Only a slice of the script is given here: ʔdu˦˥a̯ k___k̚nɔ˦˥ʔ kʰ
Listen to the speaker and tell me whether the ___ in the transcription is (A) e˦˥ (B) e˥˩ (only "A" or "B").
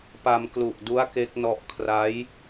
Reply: A